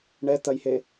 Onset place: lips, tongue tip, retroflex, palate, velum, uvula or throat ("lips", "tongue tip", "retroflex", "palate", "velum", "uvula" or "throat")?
retroflex